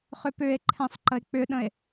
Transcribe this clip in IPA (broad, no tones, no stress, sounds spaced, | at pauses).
χ ʏ p ʏ e̯ ǃʰ ɛ̃ sˤ ǃ ə e̯ k͡p ʏ ɗ ə̃ e̯